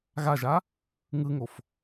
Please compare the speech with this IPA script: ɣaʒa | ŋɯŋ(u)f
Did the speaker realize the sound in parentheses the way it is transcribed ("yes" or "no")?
no